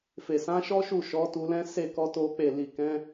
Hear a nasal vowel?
yes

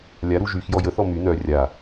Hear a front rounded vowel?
yes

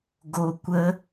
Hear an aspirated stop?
no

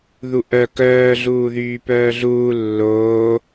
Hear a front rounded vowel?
yes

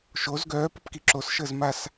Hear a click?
yes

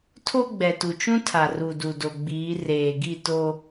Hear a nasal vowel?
yes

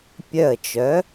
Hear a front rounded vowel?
yes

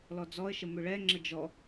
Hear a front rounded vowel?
yes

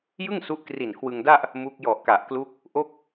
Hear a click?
no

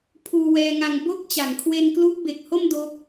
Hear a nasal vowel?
no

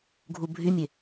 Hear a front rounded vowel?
yes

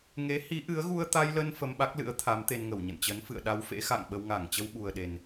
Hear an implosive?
yes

